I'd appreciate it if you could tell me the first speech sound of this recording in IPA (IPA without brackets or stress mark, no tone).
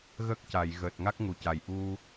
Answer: ɣ